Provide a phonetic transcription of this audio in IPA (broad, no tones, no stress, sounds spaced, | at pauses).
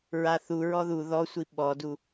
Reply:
ɹ a θ u ɹ ɔ ð u ð ɔ sʷ i ɓ ɔ d u